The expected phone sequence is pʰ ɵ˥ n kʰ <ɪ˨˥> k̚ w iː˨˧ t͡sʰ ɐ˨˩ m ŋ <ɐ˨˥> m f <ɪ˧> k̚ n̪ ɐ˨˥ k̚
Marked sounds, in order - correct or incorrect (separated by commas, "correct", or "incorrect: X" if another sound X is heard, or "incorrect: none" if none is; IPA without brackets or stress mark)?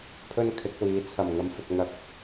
correct, correct, incorrect: ɪ˨